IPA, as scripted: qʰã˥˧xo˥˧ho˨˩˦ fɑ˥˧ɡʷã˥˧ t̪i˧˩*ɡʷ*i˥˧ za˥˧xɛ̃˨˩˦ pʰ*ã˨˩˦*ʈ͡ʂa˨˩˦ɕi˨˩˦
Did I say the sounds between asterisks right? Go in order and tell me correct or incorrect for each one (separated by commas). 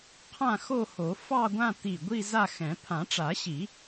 correct, correct